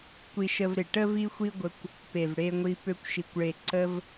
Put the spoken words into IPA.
kʷi˧ʃə˧vɾe˨ʈə˦ vi˦xʷi˦ɡʷə˧kʷ | pe˨vɽe˧ŋʷi˧ pø˧kʷʃi˨kʷɭe˨ ǀə˧v

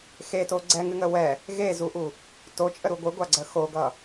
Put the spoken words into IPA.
xeto ɡ͡ǀɛŋɨŋə wɛ | ɣezuʔu | tot͡ʃʼəɾu ɡʷɨɡʷaɡ͡ǀə xoɡʌ

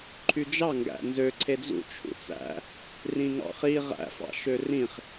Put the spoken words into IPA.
ǃʰyd͡ʒɑ ŋɡæ̰nzø ǀʰed͡zṵ t͡ʃʰṵt͡sæ̰ | rĩŋɑ̰χi ʁæ̰fɑ̰ ʃørĩχ

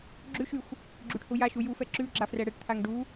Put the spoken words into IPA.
ɡ͡ǁʉʃyxʷ | ɡ͡ǁyʈhujaʃu jufɛ ǁʉ ɡ͡ǁafrɛɽɛʈt̪ʰaŋ ɖu

